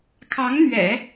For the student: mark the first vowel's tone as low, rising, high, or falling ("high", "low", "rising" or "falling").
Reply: rising